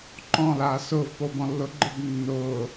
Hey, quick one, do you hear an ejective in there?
no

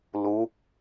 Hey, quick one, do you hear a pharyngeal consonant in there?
no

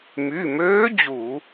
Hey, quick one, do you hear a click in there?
no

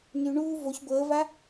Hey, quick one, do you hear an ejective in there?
no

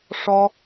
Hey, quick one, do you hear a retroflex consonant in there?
yes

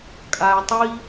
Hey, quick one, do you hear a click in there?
no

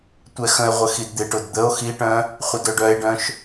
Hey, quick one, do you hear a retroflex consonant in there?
yes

